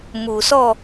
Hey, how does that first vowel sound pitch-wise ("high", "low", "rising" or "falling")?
low